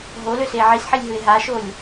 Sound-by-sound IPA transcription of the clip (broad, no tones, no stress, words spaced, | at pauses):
ɦoløse ʕisħilʲɦɯe̯ ɦaʃolʲ